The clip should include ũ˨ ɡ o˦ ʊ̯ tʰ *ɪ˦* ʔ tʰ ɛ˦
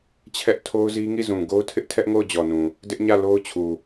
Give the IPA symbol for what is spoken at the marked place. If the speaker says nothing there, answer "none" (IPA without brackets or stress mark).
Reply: ɪ˦